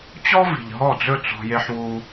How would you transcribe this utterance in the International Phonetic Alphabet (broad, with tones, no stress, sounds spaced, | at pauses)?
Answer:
t͡ɕ ɔ˦ v i̤˨ ʎ ɦ ɔ˦˨ d͡z ɵ˦˨ t͡s ɔ̤˧ j e˧ ħ w u˧